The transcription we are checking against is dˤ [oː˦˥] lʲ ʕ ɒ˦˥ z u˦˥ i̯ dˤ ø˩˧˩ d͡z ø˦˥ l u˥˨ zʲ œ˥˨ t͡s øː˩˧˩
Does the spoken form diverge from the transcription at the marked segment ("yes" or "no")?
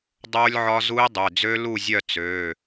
no